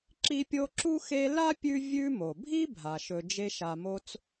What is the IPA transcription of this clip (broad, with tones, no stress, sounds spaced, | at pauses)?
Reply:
ǁ i˦ pʲ o˦ ǁ u˥ x e˦ l a˥ pʲ ʉ˦ vʲ ʉ˦ m o˩ bʱ i˥ bʱ a˩ ʃ ɵ˨ d͡ʒ e˦ ʃ a˨ m o˦ t͡s